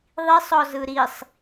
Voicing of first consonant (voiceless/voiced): voiced